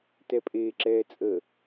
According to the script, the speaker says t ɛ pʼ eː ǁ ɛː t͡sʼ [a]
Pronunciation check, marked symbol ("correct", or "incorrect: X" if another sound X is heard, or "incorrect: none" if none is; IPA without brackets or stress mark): incorrect: ə